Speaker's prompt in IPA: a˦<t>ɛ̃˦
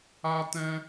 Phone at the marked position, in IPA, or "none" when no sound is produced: t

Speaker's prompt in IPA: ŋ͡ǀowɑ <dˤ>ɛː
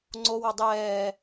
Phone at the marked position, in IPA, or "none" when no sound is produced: dˤ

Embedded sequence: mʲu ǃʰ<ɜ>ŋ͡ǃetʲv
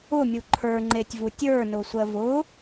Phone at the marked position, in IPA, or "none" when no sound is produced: ə˞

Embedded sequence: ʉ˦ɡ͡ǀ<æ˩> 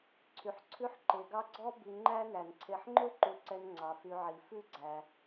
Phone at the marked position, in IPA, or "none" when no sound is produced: æ˩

